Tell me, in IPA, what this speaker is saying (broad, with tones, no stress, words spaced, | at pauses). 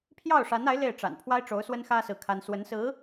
pʰjɑ˥˩ʊ̯ʂa˧˥na˧˥ɪ̯ le˥˩ɪ̯ʈ͡ʂa̰˨˩n pʰwa˥ɪ̯ʈ͡ʂo˧˥ʊ̯swə˥nxä˥ sɹ̩˥˩kʰa˥n swə˧˥nsɹ̩˧˥